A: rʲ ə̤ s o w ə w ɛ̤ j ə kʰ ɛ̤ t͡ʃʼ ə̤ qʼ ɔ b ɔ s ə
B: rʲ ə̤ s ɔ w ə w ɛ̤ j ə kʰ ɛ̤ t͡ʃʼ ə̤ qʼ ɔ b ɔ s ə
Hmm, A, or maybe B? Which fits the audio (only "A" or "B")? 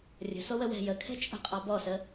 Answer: A